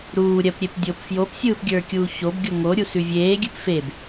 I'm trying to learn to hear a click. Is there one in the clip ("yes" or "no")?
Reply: no